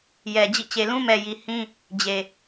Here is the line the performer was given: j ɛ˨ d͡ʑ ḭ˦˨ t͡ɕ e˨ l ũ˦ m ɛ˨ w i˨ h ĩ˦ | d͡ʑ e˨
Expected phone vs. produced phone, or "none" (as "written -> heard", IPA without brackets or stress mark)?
w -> j